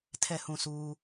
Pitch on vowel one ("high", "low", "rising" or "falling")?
falling